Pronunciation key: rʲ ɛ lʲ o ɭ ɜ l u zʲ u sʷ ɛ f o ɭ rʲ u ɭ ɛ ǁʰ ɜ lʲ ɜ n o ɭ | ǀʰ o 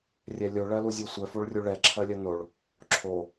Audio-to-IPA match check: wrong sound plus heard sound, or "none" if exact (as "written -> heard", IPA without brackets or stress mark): ǀʰ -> ǁʰ